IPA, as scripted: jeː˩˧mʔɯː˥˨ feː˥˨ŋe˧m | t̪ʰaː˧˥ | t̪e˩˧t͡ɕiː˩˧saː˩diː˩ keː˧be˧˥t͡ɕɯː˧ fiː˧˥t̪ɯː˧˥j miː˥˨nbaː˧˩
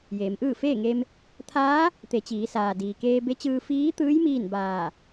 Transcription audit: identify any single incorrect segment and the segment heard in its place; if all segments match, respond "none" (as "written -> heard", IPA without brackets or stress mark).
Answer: none